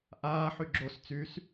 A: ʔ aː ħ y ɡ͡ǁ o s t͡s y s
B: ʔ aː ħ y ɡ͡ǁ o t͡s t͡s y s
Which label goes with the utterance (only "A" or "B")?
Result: A